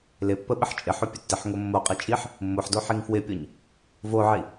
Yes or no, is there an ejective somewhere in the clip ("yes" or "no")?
yes